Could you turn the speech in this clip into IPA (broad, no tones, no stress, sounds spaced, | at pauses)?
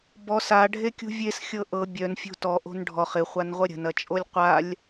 b ɔ s a ɖʱ e kʲ ṳ vʲ e s xʲ ɤ ʔ ɤ bʲ œ n fʲ o̤ t ɔ ʔ o̤ n ɖʱ ɔ χ ɪ χʷ a n ʁʷ ɐ ɾʲ ə̤ n ɐ t͡ʃʼ o lʲ qʷ a lʲ